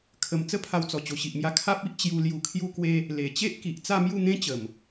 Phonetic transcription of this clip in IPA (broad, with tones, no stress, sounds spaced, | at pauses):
kʰ ə˨˩ m t͡s ə˦ pʰ a˧ w t͡s ɔ˨˩ t͡ɕ o˨˩ ɕ i˨ ʔ m j a˧ kʰ a˦ p̚ i˦ ʔ t͡ɕ j u˧ l j u˨˩ kʰ j u˧ k w e˧ | l e˨˩ t͡ɕ e˦ ʔ k i˨ ʔ t͡s a˥˧ m j u˥˧ n̪ ẽ˦ t͡ɕ ə˨˩ m